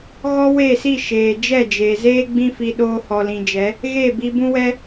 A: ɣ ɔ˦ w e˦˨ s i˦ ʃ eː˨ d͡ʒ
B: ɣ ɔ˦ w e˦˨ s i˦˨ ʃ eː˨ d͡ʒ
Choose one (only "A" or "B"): B